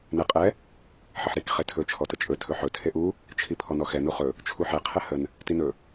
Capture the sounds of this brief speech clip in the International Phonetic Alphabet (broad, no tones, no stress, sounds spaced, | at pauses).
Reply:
n ɛ qʼ ɛ | ħ ə ħ ɾ i k χ e tʰ ɵ t͡ʃʰ ɔ t ə t͡ʃʼ ɵ tʰ ɵ ħ ɵ tʰ e ʔ u | t͡ʃʰ i pʰ ɔ n ɔ x ɛ n u χ ɵ | t͡ʃʰ u ħ ɛ qʰ ɛ h ə n | t i n ɵ